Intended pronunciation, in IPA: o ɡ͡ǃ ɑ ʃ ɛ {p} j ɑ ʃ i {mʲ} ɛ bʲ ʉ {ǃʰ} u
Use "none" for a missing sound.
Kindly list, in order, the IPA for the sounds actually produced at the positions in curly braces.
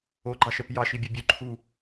p, bʲ, ǃʰ

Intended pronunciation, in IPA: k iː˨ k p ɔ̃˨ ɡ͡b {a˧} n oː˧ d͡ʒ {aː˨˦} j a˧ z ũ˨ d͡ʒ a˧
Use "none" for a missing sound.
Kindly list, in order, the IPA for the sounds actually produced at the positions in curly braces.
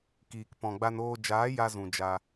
a˧, aː˨˦

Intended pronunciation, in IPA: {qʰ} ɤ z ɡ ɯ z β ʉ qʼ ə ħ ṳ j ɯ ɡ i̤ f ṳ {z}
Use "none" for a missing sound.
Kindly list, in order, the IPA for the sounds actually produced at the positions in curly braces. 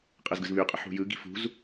qʼ, z

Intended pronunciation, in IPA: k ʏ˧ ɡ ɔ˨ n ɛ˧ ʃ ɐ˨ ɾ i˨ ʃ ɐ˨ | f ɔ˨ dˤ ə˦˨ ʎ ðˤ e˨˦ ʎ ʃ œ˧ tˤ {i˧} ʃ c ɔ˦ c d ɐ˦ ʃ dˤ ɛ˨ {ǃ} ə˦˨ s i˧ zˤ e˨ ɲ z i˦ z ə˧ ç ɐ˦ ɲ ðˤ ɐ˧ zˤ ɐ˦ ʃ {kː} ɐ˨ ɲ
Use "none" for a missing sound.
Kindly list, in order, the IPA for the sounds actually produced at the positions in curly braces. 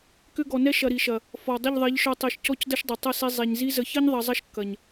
i˨, tˤ, kː

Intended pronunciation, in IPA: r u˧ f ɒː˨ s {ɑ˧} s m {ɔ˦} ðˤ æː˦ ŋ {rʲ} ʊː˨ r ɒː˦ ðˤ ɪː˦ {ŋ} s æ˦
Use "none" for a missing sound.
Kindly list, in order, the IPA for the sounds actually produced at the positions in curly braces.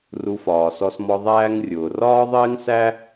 ɔ˧, ɔ˧, rʲ, ŋ

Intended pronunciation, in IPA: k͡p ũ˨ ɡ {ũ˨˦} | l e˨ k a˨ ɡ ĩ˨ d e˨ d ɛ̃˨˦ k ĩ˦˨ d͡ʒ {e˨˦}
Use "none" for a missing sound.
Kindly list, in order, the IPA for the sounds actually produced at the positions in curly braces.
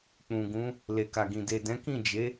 ũ˨˦, e˨˦

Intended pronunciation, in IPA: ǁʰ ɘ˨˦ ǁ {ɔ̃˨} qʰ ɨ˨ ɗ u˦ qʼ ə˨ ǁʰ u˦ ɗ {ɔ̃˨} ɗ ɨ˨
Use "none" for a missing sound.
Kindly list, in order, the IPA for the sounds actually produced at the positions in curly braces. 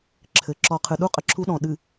ɔ˨, ɔ̃˨

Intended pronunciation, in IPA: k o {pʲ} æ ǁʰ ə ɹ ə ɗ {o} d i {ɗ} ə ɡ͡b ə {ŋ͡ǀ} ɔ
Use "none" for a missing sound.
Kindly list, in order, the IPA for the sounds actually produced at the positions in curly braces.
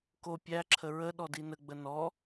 pʲ, ɔ, n, n

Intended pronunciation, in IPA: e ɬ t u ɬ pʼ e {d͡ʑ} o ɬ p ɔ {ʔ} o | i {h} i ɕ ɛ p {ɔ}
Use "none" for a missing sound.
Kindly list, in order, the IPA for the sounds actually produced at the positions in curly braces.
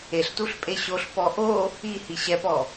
ɕ, ʔ, h, ɔ

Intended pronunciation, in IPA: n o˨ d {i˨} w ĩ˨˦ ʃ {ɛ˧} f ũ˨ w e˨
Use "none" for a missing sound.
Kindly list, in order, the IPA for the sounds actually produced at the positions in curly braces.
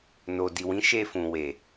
i˨, e˧

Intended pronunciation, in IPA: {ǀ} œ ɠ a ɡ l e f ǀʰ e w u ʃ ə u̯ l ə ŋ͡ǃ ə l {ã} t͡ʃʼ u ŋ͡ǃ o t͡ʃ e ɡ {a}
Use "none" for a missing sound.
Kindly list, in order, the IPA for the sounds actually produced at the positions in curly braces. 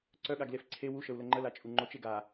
ǀ, a, a

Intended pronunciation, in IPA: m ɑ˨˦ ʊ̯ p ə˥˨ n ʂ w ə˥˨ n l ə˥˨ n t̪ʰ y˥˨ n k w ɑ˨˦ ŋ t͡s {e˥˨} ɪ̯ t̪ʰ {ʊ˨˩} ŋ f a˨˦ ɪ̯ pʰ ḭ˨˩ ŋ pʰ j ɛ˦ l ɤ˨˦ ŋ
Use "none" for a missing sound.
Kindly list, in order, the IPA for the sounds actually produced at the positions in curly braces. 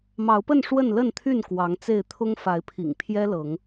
e˥˨, ʊ˦

